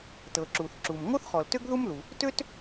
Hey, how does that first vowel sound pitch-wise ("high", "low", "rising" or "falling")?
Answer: low